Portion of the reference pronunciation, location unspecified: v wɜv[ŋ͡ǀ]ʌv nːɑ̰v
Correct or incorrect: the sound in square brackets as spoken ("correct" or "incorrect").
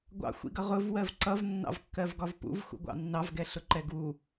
incorrect